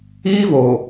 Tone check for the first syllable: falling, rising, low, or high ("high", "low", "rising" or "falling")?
high